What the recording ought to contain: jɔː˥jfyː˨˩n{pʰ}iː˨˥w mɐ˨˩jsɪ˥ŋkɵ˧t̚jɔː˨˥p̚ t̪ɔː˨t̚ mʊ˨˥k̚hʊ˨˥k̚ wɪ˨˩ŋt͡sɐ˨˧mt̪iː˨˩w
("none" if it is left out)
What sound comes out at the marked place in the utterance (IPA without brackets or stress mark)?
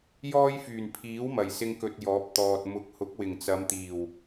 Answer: pʰ